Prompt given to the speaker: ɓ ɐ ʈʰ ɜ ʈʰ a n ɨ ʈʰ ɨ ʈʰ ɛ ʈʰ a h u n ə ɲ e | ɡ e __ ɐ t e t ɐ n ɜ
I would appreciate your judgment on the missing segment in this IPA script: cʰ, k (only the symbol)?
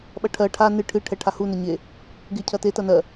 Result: cʰ